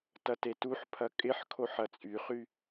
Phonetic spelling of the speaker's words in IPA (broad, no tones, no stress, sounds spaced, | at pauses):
t ɐ t e t u ħ pʰ ɐ kʼ ɪ ħ kʰ o ħ ɐ t͡sʼ y χ y